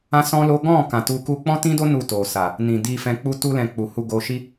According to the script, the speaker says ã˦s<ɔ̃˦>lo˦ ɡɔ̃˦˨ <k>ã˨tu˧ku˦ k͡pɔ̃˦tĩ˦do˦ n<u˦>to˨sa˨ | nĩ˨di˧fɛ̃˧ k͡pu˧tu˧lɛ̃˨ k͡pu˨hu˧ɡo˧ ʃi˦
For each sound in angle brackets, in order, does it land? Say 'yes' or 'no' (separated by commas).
yes, yes, no